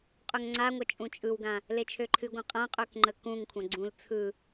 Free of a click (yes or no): no